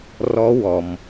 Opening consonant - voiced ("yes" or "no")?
yes